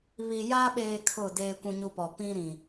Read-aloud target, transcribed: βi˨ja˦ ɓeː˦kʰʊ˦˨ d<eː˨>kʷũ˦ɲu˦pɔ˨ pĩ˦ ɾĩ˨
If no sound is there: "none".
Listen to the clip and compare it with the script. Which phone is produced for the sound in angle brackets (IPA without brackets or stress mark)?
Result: eː˦